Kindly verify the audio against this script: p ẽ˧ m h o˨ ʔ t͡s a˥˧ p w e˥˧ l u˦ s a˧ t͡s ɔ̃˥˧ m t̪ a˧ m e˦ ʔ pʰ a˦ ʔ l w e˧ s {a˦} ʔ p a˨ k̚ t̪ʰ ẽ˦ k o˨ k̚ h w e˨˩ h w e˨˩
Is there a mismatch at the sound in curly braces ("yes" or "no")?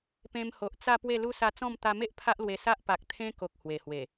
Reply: no